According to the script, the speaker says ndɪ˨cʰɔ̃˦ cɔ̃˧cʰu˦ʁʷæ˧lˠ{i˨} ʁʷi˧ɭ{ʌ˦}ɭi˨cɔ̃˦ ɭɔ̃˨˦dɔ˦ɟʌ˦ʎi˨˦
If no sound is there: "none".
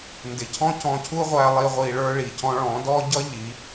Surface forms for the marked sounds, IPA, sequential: i˧, ə˞˦

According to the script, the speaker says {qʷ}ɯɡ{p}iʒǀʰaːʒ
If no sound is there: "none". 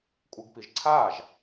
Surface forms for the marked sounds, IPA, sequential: kʷʼ, p

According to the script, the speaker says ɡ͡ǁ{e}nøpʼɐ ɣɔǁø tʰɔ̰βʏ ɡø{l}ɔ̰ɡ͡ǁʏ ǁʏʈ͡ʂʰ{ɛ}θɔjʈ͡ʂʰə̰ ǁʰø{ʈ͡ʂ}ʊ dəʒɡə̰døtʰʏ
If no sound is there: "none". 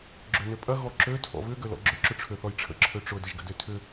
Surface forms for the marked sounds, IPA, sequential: ø, l, ø, ʈ͡ʂ

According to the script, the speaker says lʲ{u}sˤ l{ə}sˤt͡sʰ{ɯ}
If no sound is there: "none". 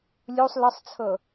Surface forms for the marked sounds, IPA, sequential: u, ə, ɤ

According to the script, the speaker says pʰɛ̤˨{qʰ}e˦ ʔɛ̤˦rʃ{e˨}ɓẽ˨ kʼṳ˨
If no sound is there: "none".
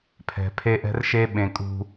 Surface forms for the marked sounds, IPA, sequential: pʰ, e˦

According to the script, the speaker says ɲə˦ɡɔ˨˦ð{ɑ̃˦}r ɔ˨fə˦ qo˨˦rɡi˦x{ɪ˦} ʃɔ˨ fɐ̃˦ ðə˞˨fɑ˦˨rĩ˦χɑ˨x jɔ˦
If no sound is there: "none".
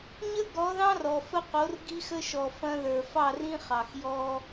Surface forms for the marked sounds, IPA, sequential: ɑ̃˦, ə˦

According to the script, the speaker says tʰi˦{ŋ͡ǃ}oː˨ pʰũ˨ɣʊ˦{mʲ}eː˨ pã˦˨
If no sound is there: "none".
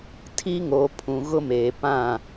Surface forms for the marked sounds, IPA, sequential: ŋ, m

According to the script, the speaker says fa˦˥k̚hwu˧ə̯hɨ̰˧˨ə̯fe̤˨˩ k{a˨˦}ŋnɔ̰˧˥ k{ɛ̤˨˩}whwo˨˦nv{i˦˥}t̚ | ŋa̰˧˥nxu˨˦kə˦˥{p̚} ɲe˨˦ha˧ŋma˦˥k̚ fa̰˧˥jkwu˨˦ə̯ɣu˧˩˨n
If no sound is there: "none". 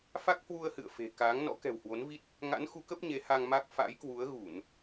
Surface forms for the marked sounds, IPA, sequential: aː˨˦, ɛ̤˨˩, i˦˥, p̚

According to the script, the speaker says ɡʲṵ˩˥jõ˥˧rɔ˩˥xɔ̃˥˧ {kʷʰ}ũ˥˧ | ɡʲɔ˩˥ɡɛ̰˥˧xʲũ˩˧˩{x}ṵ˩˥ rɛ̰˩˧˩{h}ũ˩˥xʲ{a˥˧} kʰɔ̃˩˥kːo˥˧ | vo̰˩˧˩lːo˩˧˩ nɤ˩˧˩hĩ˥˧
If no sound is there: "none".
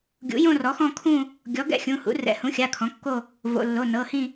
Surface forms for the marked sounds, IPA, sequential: kʰ, h, h, a˩˧˩

